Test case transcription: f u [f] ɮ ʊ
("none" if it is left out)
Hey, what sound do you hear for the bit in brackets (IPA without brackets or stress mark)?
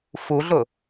none